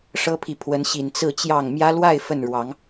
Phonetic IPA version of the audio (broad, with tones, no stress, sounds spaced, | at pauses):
ʂ ɤ˦ pʰ i˨ pʰ w ə˨˦ n ɕ i˨˩ n t͡s ɹ̩˥˨ t͡ɕ j ɑ˥˨ ŋ m j ä˦ l w a˥˨ ɪ̯ f ə˥˨ n ɻ w ɑ˨˦ ŋ